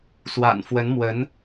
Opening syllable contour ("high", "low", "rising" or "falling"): low